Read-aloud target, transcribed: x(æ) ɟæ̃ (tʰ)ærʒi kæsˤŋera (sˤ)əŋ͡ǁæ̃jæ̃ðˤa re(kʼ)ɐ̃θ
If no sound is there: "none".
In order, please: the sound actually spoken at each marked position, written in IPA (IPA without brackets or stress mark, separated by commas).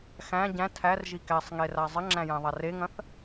æ̃, tʰ, zˤ, ŋ